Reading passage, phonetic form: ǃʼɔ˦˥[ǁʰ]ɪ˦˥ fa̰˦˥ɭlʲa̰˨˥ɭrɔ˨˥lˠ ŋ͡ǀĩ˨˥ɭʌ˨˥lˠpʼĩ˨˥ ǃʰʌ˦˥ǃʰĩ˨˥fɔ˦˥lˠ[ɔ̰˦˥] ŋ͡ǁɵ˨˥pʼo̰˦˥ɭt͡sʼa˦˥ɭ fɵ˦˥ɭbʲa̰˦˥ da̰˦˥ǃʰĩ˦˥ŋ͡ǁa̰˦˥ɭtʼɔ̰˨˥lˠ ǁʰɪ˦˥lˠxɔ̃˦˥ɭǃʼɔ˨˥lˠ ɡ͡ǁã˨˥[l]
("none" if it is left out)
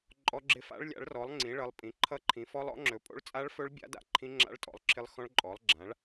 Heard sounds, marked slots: ɡ͡ǁ, ɔ̰˨˥, ɭ

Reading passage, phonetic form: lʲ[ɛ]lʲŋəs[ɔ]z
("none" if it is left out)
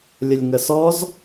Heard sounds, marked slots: ə, ɔ

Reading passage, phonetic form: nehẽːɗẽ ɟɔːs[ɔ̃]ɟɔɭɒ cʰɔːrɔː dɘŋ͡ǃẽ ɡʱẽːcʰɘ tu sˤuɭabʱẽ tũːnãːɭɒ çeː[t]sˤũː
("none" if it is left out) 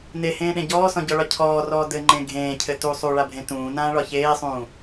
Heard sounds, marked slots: ɔ̃, none

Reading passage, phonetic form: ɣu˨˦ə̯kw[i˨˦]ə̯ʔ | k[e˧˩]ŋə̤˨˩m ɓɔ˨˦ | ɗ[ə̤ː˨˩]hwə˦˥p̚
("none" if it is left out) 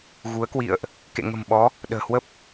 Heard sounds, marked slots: ḭ˧˨, ḛ˧˨, ə̤ː˨˩

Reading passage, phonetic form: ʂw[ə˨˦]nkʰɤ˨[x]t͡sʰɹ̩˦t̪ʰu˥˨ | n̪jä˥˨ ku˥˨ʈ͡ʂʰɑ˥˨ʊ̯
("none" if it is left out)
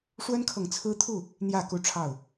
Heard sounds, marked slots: ə˦, ŋ

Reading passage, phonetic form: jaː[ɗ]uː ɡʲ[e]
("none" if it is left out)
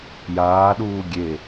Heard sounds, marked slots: ɗ, e

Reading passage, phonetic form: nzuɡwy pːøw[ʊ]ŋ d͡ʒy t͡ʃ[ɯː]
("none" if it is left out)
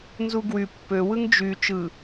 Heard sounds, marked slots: ɯ, ɯ

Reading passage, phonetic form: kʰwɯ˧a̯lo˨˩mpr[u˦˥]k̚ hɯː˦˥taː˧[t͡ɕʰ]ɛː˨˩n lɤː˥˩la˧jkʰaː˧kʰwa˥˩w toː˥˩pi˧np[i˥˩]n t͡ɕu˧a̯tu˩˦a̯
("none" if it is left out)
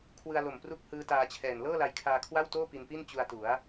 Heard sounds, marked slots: u˦˥, t͡ɕʰ, i˥˩

